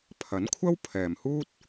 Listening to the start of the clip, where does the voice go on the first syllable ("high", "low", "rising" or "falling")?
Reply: rising